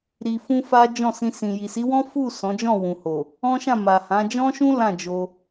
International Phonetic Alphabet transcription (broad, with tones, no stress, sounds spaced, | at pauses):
ɾ i˧ f ũ˦ f a˦ d͡ʒ ɔ̃˦˨ s ĩ˧ s ĩ˨ j i˨ s i˨˦ w ɔ̃˦ f u˦˨ s ɔ̃˨˦ d͡ʒ ɔ̃˦˨ w ũ˨ h o˨ | ɔ̃˦ ʃ ã˦˨ m a˨ h ã˨˦ d͡ʒ ɔ̃˦ ʃ ũ˦ l ã˦˨ d͡ʒ o˧